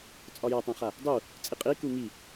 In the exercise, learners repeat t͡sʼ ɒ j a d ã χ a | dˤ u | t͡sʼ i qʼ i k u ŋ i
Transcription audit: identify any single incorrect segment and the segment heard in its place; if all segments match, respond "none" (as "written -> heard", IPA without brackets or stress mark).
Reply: d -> tˤ